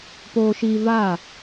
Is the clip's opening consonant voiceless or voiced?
voiceless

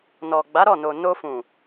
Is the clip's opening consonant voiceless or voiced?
voiced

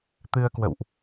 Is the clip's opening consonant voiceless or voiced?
voiceless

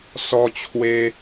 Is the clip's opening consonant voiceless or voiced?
voiceless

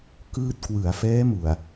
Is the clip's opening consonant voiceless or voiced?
voiceless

